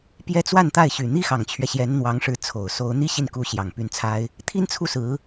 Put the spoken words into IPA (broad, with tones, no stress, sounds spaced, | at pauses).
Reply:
p j ɛ˥ t͡s w a˥˧ n t̪ a˥˩ ɪ̯ ɕ y˨˩ n̪ i˥ x ɑ˨˩ ŋ t͡ɕʰ ɥ ɛ˦ ɕ j ɛ˧˥ n n̪ w ɑ˧˥ ŋ ʂ ɻ̩˧˥ t͡sʰ o˨˩ ʊ̯ s o˧˥ ʊ̯ n̪ i˥ ɕ i˥˩ n k u˧˥ ɕ j ɑ˨˩ ŋ p y˧˥ n t͡sʰ a˥ ɪ̯ | t̪ʰ i˥ n t͡sʰ u˥˩ s ɹ̩˧˥